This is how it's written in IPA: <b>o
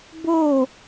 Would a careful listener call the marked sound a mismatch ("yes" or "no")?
no